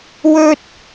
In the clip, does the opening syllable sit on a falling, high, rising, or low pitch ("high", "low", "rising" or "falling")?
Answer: low